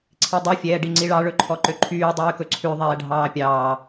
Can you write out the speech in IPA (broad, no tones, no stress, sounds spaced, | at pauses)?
ǀʰ i dˤ ɵ fʲ ɛː ɖ i ŋ͡ǀ i ɭ ɑ ɭ ɵ ǃʰ ɔ ǃ ø ǃʰ yː dˤ yː k ɵ ǀʰ ʉ ðˤ ɛː ɖʱ ɑː pʲ ɑː